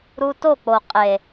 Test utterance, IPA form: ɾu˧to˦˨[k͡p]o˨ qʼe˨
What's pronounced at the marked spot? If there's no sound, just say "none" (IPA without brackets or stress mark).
k͡p